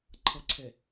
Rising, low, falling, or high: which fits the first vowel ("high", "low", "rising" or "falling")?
low